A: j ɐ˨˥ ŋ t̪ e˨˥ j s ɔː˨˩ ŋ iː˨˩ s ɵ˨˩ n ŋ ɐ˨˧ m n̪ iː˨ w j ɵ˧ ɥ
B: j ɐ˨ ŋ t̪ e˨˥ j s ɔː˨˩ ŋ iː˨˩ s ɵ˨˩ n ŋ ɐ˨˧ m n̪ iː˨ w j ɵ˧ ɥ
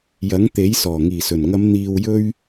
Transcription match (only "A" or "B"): A